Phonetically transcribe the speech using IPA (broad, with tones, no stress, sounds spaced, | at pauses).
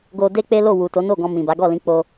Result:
ɡ o˧ d e˦ k͡p e˦ l o˦˨ w u˨ t o˨˦ n o˦˨ ɡ ɔ̃˧ m ĩ˨ b a˨˦ ɡ ɔ˦˨ l ĩ˨˦ k͡p o˧